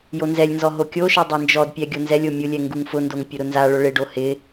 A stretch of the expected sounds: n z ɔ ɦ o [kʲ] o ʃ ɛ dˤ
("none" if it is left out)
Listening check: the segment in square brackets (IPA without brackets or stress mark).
kʲ